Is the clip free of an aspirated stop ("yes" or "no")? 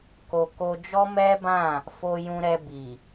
yes